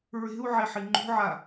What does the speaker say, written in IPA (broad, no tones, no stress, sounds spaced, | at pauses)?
ɹ e̤ u̯ ʕ e ħ i ŋ͡ǃ ṳ ʕ a